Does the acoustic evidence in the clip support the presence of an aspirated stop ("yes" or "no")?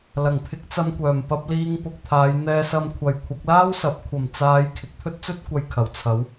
yes